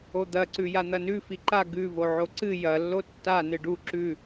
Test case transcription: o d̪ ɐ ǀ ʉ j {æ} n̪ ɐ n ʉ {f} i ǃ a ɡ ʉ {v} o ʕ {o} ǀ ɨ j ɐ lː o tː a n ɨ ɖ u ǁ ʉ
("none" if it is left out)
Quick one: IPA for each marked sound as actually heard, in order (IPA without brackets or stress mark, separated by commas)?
a, f, v, o